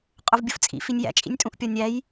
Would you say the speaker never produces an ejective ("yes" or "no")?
no